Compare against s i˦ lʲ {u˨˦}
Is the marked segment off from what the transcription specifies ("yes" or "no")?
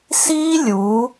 no